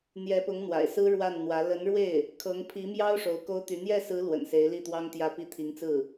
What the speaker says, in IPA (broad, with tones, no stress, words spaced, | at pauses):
n̪jɛ˧˥pʊ˧˥ŋn̪wa̰˨˩ɪ̯sɹ̩˥ ɻwa˥˩nn̪wä˧˥ lə˧˥nɻwe˥˩ɪ̯ | kʰɤ˧˥ŋpʰi˧˥mjɑ˥ʊ̯ ʂo˧˥ʊ̯ko˥ʊ̯t̪y˧˥ n̪jɛ˥˩sɹ̩˧˥ lwə̰˨˩nse˧˥ɪ̯li˥˩t̪wɑ˥ŋ t̪jä˥˩pi˥ t̪ʰi˧˥ŋt͡sɹ̩˥˩